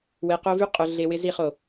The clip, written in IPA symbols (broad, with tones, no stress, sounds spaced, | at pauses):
w e˨ q o˦ v y˦ qʼ ʊ˨ ɮ e˨ w ɪ˦ z i˦˨ χ o˨